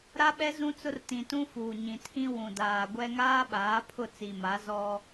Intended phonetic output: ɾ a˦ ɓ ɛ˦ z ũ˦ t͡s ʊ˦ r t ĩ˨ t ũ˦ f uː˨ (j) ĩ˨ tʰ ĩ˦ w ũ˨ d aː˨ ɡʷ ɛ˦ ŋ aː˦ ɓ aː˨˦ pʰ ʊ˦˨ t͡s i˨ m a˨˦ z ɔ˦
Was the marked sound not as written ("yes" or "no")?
yes